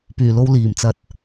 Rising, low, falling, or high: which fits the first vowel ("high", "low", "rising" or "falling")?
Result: low